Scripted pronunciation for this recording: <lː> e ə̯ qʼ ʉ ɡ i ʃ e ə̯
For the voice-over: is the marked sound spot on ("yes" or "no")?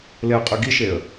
no